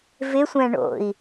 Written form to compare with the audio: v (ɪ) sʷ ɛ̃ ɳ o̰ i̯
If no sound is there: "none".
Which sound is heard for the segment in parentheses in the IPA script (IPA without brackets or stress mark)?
ɪ